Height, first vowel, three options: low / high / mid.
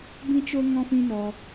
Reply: high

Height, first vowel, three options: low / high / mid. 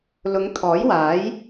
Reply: high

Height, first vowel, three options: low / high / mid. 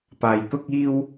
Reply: low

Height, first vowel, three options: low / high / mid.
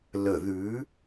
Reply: mid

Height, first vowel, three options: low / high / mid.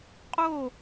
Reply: mid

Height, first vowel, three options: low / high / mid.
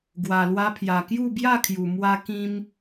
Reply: low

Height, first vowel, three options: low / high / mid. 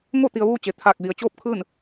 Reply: mid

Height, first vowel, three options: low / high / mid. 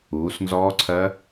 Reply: high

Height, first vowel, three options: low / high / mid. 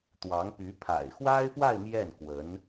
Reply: low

